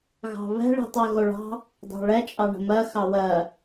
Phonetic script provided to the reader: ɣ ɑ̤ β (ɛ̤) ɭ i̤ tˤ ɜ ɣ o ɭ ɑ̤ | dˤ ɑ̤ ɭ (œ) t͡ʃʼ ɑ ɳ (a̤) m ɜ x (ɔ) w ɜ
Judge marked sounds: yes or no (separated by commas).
yes, no, no, no